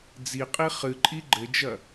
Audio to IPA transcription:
d͡ziqʼi χɨǃʼi ɡ͡ǃɘd͡ʒɐ

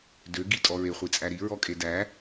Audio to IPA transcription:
dø ɡitʼɔɹe χʷit͡sʼæɾi ɹɔkʼedæ

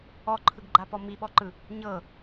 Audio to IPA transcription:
ɔǃʰɯɡɡ͡ǃapɔ miɓɔǃɯ | ɲɤ

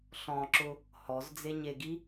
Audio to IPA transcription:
ɬɔ̃ǁʊ | hɔzd͡zeɲeɡi

